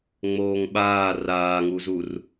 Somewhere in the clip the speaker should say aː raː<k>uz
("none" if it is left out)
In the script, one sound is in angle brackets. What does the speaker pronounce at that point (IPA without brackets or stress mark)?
ŋ